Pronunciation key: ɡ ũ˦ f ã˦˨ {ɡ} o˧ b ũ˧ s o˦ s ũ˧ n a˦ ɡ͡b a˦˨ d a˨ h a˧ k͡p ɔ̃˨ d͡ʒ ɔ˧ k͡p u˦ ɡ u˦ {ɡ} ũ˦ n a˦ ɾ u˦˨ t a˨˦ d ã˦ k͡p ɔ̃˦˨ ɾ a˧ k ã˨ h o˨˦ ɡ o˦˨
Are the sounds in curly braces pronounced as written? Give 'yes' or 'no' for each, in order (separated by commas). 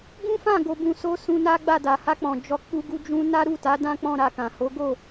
yes, no